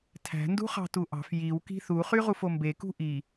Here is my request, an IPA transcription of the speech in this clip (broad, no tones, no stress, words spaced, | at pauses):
tʰæ̤ ndṳχɑ̤tuʔɑ̤f jiw ki̤θu χyʁufombe kṳʔi